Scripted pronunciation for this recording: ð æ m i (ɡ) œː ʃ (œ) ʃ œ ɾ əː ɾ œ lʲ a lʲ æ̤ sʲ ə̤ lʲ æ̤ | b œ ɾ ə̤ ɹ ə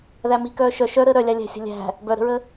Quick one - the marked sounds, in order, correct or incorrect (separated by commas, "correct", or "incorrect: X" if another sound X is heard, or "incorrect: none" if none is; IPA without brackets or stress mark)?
incorrect: k, correct